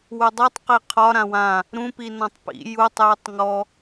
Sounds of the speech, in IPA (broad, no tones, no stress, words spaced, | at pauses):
wudˤitˤ qiqʰɒ ɾãwã | ɾũ pinɔ̃tˤpḭ jutˤ jutˤŋɔ